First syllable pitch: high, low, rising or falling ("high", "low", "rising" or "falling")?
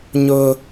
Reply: high